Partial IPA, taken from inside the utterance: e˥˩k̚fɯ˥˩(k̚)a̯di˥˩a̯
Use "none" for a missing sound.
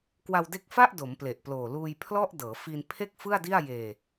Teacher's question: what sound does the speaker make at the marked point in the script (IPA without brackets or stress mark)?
none